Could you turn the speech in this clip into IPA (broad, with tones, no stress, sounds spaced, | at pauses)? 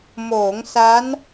m oː˩˦ ŋ s a˦˥ n